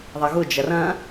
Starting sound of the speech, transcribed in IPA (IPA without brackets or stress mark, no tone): ðˤ